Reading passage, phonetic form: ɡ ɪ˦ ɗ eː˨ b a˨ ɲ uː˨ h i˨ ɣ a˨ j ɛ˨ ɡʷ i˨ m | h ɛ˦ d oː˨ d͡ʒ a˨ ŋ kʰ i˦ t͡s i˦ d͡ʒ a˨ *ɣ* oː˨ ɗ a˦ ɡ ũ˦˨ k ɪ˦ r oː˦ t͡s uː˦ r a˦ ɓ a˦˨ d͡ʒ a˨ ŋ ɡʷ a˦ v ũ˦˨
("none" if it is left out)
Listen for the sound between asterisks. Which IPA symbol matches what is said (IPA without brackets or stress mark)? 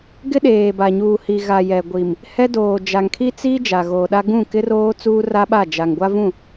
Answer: ɣ